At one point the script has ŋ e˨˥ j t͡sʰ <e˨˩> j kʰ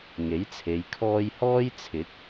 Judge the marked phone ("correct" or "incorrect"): incorrect